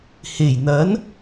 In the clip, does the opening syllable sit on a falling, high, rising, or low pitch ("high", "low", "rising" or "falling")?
low